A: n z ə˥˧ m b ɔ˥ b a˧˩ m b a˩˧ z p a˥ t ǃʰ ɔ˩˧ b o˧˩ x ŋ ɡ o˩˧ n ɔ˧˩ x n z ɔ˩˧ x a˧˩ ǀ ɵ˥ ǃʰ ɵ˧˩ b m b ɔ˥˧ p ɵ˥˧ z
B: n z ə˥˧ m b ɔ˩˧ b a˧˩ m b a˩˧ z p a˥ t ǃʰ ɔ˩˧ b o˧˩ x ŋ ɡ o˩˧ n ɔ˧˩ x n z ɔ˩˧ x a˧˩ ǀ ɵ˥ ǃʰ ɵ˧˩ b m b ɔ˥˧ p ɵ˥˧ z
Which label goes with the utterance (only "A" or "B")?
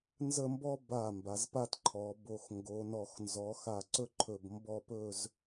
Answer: A